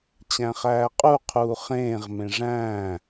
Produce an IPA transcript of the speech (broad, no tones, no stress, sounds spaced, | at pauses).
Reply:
t͡ɕ æ̃ χ æː qʼ u qʰ uː χ ẽː ʁ m ẽ ʐ æ̃ː